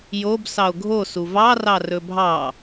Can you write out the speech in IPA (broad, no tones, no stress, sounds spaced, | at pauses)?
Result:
j o b s ɑ o̯ ɡʱ o s u v ɑ r ɑ r ɵ bʱ ɑ